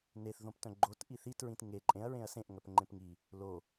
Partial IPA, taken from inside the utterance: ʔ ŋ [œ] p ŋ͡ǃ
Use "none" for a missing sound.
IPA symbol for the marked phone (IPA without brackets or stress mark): œ